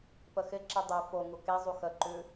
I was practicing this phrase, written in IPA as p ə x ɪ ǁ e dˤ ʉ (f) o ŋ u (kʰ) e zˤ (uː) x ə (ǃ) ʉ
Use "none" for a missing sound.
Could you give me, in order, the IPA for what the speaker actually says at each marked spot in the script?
f, k, u, ǃ

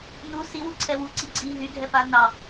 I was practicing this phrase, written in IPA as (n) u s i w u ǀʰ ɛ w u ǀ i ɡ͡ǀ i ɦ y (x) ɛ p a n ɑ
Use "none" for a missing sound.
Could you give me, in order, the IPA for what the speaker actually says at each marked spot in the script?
n, ɡʱ

